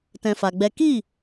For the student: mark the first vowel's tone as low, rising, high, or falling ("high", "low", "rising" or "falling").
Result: high